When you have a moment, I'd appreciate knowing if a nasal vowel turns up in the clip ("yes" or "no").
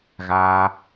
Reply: no